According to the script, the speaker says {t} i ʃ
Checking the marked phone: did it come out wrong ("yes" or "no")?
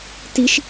no